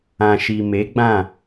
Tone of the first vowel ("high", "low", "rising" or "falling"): low